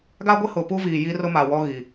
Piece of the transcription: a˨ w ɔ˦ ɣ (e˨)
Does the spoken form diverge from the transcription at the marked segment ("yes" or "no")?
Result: yes